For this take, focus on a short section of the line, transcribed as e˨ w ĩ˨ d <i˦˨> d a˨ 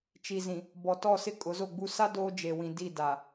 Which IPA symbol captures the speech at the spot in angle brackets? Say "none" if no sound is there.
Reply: i˦˨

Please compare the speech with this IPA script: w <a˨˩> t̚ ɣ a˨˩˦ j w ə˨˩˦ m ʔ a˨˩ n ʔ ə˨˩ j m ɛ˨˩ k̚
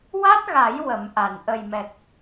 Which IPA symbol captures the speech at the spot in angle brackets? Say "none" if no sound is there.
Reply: a˦˥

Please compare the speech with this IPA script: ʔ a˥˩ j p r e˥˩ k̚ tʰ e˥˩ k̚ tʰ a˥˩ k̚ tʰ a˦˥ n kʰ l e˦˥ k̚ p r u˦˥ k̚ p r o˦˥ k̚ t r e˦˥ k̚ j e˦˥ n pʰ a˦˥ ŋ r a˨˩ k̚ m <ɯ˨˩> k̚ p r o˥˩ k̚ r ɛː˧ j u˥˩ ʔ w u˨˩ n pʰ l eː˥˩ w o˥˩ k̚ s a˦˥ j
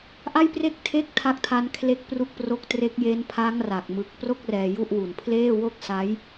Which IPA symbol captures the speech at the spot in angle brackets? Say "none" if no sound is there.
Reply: ɯ˨˩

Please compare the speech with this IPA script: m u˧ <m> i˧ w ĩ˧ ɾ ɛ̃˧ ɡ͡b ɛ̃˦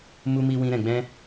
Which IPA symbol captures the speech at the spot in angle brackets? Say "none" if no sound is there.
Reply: m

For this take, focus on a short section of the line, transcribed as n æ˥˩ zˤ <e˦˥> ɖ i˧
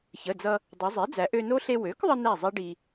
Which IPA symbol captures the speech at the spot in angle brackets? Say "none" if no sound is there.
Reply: e˦˥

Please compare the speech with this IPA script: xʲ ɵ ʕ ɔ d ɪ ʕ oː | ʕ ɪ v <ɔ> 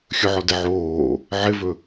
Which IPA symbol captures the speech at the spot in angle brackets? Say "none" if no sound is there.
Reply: ɵ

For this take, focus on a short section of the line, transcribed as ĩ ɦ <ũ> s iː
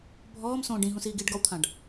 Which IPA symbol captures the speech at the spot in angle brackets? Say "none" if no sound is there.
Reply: ũ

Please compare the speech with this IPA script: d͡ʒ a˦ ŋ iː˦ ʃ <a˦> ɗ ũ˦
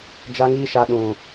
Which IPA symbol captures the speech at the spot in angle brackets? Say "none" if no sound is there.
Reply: a˦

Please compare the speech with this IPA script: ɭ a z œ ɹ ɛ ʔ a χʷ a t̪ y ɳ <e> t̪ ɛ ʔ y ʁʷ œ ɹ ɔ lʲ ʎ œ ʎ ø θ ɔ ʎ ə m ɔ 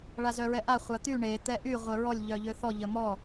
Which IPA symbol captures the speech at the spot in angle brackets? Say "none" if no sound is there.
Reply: e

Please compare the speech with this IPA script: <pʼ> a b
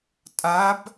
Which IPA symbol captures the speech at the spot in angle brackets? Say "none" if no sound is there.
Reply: tʼ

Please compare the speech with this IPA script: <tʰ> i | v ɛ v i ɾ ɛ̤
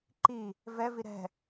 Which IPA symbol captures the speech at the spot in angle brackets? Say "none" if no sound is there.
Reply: ǃ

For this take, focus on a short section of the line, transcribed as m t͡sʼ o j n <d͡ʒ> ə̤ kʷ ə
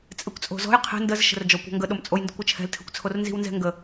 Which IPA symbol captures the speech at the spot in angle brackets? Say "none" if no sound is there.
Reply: d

